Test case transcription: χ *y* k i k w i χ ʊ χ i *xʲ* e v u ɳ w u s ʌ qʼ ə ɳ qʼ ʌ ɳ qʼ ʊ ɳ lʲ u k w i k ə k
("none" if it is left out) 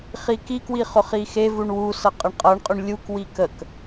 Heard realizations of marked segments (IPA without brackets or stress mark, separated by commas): i, x